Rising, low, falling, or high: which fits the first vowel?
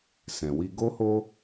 low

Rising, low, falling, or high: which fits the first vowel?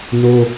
high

